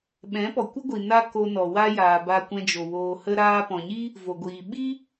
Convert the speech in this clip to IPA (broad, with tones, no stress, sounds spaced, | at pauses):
ɓ ɛ̃˨˦ p ɔ˨ kʷ ə˦ ɡʷ i˨ n a˧ k o˧ n ɔ˨ w a˦ j aː˨ b a˧ kʷ ɛ̃˧ d͡ʒ o˨ w oː˨ h ə˧ ɾ aː˧ p ɔ̃˨ ɲ i˦ | v o˨ ɡʷ iː˨ ɓ i˦